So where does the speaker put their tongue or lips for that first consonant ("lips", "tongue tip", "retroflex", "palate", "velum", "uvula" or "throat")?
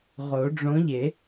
uvula